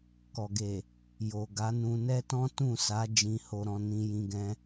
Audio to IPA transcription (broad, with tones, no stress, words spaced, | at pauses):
kɔ˨ɡe˨ | jo˨ ɡa˨˦nũ˧nɛ˦ tɔ̃˦tũ˦˨sa˨˦ d͡ʒĩ˧ho˧ɾɔ̃˧ nĩ˧jĩ˧ɡɛ̃˧